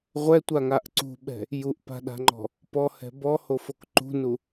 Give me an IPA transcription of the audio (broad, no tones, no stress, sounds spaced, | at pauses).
ʁʷ ɛ tʷ a ŋ a ʔ ǀ ṳ ɓ ɛ̤ | j u ʔ p a̤ ɗ a̤ ŋ͡ǃ ɔ̤ | p ɔ h ɛ̤ b ɔ h o f o k ǃ ṳ n u